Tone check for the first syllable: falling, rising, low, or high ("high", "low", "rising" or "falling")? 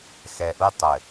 low